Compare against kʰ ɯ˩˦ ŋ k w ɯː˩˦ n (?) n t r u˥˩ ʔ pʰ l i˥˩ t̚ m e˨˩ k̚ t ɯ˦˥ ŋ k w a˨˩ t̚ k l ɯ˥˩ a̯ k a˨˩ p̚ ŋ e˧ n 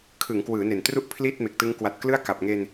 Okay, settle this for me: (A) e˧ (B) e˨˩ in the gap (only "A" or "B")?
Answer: B